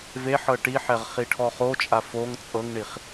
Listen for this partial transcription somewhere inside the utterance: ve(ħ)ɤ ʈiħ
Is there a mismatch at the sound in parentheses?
no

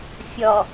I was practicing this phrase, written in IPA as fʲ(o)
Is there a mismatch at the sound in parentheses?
yes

